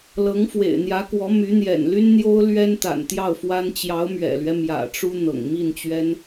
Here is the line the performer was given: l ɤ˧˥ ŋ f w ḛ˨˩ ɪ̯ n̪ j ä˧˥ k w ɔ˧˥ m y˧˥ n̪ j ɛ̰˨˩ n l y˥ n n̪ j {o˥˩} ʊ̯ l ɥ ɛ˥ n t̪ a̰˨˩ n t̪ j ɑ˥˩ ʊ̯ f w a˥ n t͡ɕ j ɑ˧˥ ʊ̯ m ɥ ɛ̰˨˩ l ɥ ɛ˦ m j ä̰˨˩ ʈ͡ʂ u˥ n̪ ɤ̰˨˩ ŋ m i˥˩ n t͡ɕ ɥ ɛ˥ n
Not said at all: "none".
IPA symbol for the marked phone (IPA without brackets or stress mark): o˥